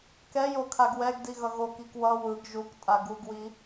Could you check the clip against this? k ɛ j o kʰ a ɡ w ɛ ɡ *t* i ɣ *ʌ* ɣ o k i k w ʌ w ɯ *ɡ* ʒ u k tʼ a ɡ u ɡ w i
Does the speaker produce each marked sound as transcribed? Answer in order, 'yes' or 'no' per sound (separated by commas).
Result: no, yes, yes